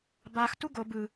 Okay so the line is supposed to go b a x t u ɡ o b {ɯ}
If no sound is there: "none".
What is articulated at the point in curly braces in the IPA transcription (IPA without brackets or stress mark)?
ɯ